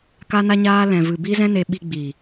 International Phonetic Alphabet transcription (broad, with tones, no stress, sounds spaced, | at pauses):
k a˧ n a˧ ɲ aː˧ l ɛ̃˨ v ɨ˨ b i˦ z ɛ̃˦ n e˧ ɓ i˧ ɡ͡b i˨